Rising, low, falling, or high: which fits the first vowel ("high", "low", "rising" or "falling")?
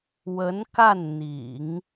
rising